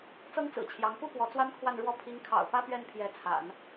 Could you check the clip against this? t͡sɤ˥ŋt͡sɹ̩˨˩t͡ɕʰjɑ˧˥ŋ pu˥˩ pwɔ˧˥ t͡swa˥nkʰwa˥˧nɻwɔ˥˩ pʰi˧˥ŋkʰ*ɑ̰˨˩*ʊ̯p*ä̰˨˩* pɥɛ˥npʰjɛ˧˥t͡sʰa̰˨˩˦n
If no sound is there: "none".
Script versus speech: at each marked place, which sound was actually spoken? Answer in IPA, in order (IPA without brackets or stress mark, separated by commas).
ɑ̰˨˩, ä˥